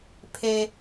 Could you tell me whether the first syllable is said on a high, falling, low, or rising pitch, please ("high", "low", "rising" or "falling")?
low